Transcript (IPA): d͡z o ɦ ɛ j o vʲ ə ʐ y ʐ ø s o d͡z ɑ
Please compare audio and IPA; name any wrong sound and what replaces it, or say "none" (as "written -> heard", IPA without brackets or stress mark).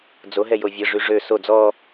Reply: ɑ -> ɔ